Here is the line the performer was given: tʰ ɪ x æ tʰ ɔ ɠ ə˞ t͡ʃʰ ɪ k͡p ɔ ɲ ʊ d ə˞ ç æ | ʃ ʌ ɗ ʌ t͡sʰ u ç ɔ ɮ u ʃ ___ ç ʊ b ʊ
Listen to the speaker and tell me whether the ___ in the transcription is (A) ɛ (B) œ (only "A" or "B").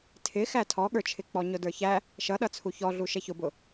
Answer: A